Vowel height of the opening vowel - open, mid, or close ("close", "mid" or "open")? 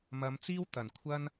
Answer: open